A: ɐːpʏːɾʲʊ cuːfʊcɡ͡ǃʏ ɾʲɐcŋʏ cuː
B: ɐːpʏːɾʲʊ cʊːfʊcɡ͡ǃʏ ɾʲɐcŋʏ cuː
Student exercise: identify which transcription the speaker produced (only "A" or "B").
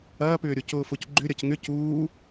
B